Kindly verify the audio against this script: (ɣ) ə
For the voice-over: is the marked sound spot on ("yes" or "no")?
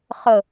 no